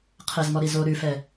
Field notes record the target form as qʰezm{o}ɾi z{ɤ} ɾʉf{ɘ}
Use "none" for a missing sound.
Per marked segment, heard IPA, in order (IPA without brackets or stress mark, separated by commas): ɔ, o, ɛ